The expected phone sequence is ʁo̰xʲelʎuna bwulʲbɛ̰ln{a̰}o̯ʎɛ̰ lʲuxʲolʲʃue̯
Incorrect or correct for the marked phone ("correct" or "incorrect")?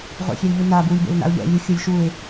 correct